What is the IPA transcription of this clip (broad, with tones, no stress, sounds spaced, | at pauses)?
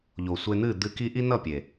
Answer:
ʎ o˨ sʷ e˧ n̪ ɨ˦˨ d̪ ɨ˧ k i˦ ʔ i˦ n ʌ˦˨ pʲ e˨